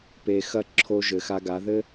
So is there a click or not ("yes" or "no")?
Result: yes